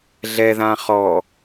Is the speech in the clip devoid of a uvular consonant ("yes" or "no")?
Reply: no